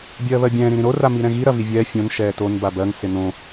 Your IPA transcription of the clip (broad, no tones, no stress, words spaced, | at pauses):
bʲɜːβɜbʲɛ̃ː ɾĩɾĩɾo ramiɾɛ̃ɣi ɾɐvivʲɛː fʲõn ʃɛːton babɜŋ sɪnõ